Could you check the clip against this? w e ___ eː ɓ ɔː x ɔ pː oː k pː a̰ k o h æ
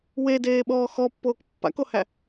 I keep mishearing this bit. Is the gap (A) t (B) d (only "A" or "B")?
B